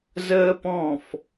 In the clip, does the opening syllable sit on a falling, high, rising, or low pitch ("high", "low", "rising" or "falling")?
high